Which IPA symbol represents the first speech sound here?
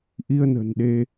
ʔ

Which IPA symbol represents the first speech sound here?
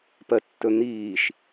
p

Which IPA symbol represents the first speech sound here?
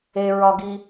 e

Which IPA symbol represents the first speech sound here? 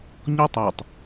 ɲ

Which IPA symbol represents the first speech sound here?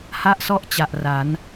h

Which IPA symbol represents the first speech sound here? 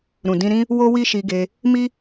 ɾ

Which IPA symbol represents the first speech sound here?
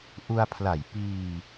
ʔ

